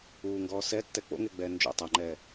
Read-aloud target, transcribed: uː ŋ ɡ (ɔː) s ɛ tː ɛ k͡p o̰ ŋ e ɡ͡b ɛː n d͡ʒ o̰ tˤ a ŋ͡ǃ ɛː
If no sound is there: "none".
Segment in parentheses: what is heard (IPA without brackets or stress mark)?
ɔː